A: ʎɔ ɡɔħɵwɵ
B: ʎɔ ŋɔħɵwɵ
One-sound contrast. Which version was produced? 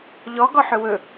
A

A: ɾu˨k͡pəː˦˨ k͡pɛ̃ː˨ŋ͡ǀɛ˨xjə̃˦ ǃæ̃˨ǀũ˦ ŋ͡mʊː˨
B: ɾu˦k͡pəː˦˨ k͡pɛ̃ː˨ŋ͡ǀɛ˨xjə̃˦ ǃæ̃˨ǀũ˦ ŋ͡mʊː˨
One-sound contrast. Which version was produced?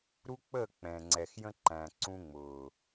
B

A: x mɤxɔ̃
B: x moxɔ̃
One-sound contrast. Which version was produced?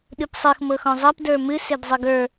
A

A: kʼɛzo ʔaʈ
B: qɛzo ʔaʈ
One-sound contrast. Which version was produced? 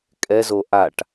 A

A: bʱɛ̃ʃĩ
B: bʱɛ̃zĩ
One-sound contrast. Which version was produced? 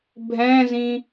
B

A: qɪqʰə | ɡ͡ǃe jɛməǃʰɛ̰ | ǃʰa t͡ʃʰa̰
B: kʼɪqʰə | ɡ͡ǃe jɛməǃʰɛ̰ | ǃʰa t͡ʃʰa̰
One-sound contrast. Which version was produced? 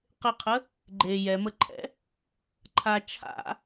A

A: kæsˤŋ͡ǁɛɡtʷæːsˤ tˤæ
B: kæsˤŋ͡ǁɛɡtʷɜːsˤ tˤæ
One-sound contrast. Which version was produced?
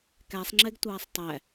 A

